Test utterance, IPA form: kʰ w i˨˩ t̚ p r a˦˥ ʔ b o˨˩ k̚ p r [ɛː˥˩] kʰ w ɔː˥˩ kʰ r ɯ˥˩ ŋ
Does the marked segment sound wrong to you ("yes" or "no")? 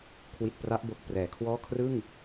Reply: yes